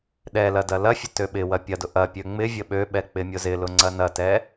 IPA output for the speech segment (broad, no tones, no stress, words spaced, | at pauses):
ɗɛlɐ dɐlɐfʲə tøɓɪwɐ pʲɐdʊ ʔɐ pʲøŋ͡mɪvʲə ɓøɓɛ k͡pɪmʲʊzɪlʊ ŋ͡ǀɐnɐtɛ